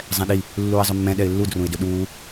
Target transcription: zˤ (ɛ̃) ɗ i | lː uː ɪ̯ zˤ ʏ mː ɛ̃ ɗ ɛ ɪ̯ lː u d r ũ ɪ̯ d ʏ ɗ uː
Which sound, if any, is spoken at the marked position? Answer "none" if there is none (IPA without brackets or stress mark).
ɛ̃